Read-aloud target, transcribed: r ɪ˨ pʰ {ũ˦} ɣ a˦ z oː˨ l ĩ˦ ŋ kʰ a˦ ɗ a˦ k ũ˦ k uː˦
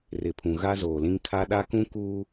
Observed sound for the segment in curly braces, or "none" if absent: ũ˨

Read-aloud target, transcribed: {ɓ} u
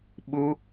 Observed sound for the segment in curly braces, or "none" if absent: ɓ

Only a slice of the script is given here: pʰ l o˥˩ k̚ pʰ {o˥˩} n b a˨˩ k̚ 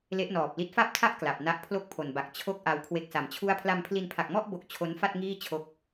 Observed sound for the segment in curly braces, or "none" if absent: o˨˩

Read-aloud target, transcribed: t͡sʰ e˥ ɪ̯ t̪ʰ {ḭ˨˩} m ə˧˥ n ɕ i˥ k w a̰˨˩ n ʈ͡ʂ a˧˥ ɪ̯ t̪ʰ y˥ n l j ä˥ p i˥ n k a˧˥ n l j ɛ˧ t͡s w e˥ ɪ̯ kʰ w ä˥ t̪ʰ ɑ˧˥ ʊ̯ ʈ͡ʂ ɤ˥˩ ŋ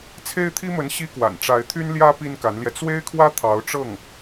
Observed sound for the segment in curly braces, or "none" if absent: i˥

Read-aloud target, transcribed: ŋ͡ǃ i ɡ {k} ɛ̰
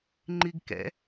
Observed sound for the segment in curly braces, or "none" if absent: k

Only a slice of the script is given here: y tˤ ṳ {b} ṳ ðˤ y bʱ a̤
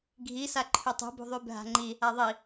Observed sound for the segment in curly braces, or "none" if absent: b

